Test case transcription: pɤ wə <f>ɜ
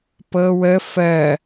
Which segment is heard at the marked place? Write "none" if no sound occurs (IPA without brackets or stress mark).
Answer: f